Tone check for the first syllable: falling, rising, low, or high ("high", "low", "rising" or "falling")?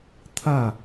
falling